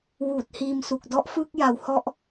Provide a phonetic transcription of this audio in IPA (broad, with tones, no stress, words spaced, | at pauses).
wuː˨˩t̚hiː˧msu˨˩k̚dɔ˦˥ʔ fɯ˥˩k̚ja˨˩whɔ˦˥ʔ